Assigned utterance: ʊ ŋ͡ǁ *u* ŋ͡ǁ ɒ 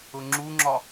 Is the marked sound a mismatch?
no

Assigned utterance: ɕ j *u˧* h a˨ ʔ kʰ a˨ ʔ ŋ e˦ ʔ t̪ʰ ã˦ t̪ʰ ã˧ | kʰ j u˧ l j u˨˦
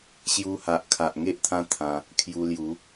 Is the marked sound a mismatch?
no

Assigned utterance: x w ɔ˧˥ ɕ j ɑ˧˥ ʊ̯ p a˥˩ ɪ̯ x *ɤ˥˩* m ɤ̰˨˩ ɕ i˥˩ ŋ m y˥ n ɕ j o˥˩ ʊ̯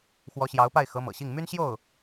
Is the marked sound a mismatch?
yes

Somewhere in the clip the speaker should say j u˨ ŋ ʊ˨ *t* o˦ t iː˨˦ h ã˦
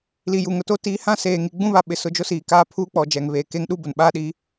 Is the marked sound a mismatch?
no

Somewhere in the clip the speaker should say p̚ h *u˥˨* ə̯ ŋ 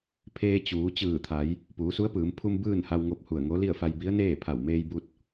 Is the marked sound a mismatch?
yes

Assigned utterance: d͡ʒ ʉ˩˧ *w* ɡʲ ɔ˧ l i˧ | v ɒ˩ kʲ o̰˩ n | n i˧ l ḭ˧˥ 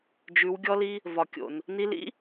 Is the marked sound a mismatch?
no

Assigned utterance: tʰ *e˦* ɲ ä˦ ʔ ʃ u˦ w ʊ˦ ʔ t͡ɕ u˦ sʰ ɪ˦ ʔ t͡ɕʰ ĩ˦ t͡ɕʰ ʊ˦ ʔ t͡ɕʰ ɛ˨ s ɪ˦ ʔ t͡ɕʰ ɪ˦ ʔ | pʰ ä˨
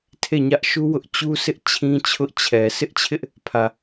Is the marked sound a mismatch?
yes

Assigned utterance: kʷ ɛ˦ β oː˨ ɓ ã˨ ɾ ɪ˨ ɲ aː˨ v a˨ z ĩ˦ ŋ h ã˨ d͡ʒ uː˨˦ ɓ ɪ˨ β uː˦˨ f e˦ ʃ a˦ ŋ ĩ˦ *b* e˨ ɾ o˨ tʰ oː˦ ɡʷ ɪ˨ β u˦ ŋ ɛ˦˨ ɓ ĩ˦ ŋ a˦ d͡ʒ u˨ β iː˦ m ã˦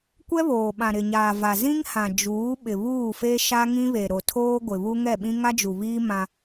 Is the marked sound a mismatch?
yes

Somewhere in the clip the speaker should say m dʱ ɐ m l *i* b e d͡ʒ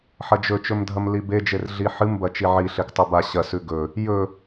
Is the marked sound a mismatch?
no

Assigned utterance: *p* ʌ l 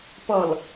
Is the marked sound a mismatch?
no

